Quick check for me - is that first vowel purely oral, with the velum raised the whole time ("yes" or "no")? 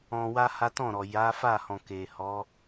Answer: no